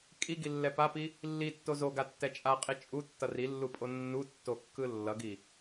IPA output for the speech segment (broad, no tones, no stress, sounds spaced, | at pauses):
kʼ i ɡ i lː ɛ p a p i | lː i tː o z o ɡ a tː ɛ t͡ʃʼ a qʼ i t͡ʃʼ u tː ʌ r i lː u pʼ o nː u tː o kː ɯ lː ʌ ɡ i